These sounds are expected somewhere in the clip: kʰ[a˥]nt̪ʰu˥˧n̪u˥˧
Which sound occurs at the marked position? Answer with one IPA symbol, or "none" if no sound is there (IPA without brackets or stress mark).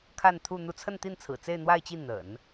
a˥˧